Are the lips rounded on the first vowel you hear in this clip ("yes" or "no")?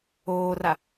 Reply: yes